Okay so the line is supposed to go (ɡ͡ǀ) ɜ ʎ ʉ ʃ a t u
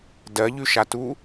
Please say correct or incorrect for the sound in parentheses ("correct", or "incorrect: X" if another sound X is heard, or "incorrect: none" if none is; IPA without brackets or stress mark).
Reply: incorrect: d